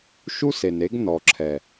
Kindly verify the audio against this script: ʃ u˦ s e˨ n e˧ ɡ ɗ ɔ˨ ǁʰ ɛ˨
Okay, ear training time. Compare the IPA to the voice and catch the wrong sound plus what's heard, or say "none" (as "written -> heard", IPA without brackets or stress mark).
ɗ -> n